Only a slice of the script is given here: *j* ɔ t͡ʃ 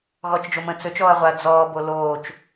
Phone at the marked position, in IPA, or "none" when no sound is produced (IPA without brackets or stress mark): ɣ